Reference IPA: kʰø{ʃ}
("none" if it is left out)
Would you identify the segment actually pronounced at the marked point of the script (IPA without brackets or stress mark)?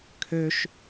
ʃ